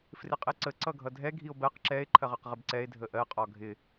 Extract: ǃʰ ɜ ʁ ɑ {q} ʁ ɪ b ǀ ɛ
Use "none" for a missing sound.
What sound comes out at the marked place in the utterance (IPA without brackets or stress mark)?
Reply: q